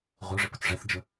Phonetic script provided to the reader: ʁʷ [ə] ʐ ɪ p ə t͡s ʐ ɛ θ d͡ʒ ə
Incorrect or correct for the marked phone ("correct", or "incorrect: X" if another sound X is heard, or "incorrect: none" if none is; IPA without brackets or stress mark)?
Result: incorrect: ə˞